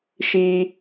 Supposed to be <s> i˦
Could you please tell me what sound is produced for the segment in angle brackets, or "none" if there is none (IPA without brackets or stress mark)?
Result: ʃ